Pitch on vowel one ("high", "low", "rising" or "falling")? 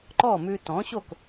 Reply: falling